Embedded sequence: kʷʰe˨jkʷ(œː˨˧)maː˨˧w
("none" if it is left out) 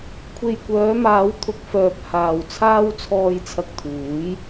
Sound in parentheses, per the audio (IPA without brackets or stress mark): œː˨˧